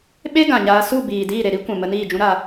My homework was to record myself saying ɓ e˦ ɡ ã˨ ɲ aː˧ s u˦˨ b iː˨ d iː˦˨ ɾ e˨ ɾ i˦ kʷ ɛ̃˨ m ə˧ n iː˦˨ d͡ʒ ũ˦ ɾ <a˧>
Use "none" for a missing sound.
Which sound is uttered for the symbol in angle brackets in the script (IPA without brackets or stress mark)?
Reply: a˧